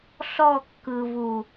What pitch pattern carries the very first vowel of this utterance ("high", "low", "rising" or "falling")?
falling